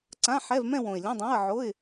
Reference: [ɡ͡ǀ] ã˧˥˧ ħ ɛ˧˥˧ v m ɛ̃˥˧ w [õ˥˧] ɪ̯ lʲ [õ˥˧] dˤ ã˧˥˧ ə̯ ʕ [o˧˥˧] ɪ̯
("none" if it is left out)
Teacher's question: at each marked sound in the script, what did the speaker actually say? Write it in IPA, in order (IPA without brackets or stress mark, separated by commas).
ǀ, õ˨˩, õ˧˥˧, o˧˥˧